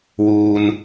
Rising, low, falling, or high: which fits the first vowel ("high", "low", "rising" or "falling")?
low